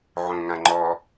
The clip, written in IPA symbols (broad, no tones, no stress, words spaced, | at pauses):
ʕõŋãŋ͡ǃɔ